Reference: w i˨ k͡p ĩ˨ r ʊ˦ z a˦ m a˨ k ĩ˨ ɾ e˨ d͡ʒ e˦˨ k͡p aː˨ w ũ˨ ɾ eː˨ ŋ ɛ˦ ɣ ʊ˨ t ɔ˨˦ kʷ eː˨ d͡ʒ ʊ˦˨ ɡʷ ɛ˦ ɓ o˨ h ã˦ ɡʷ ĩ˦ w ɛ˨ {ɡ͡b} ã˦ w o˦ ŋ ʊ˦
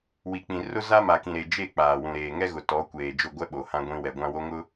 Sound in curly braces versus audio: incorrect: ɡʷ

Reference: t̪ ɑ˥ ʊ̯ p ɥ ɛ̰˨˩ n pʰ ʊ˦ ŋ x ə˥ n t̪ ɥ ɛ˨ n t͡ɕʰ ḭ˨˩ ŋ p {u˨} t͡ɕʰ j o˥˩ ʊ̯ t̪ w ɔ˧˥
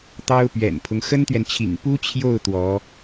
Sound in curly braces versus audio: incorrect: u˥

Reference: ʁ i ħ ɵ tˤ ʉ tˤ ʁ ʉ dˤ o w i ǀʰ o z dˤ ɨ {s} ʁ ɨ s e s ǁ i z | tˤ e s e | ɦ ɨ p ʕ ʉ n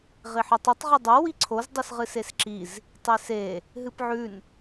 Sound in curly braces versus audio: correct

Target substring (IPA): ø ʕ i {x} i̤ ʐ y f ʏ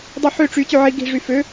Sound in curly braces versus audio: incorrect: ɡ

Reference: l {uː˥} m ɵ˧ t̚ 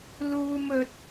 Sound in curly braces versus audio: correct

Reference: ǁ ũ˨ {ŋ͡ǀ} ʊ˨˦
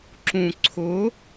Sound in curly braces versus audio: incorrect: ǀʰ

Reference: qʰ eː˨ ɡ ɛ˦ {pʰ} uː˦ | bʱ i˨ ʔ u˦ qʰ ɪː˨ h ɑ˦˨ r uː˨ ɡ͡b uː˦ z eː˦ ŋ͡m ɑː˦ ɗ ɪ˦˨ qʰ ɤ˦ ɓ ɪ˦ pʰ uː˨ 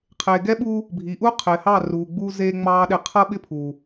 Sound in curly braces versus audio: incorrect: ɓ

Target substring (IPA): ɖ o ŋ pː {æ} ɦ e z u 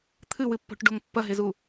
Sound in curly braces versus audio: incorrect: ɐ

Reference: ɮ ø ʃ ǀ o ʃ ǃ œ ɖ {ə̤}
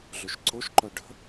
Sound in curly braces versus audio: correct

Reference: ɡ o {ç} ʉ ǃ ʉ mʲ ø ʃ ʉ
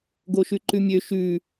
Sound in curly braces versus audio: incorrect: ʃ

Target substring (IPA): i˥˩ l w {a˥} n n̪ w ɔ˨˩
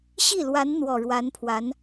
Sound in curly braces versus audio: incorrect: a˧˥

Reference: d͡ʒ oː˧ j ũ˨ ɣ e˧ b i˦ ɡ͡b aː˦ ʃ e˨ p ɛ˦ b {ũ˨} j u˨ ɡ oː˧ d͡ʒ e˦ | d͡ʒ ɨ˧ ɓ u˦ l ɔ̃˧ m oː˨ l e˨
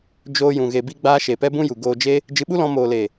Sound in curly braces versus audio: incorrect: ũ˦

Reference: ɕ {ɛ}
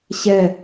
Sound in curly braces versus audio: correct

